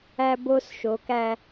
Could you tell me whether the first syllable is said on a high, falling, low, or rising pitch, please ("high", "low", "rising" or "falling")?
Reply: high